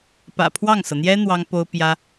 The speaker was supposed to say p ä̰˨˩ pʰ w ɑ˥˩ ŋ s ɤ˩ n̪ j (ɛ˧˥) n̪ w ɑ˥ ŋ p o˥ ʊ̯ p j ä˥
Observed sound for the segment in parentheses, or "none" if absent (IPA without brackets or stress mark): ɛ˥